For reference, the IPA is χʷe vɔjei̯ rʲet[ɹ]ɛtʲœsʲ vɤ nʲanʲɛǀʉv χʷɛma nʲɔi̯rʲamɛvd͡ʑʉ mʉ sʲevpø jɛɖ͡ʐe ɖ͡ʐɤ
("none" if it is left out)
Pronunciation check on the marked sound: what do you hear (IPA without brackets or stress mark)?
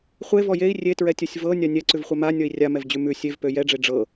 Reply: ɹ